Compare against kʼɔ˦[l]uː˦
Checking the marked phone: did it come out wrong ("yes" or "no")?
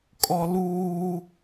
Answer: no